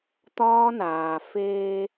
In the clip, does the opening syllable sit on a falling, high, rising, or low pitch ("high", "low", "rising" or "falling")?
high